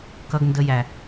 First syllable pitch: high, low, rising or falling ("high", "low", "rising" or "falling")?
high